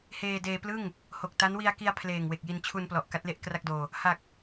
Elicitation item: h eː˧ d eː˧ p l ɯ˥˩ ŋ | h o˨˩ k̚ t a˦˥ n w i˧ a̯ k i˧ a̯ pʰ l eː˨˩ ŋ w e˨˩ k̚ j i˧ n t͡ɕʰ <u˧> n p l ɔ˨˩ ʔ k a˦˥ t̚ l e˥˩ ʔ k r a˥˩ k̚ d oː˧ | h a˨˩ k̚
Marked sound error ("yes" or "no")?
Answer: no